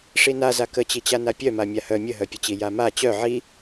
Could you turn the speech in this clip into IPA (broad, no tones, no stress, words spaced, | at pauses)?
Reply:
ʂinaza kət͡ɕit͡ɕana pʲœma mʲahœ mʲəɦœpʲət͡ɕi jama t͡ɕœ ʕi